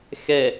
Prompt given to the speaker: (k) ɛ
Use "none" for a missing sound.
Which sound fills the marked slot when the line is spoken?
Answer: x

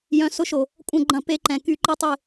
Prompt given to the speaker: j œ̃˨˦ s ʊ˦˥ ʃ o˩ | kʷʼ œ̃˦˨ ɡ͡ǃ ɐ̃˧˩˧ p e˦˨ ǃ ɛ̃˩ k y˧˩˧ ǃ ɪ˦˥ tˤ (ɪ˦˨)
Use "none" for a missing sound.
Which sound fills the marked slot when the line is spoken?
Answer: ɪ˦˨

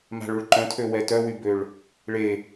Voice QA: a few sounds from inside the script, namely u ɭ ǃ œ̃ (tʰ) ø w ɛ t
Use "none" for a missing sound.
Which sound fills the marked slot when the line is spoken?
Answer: tʰ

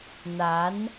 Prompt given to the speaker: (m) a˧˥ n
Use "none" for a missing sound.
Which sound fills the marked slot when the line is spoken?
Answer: n̪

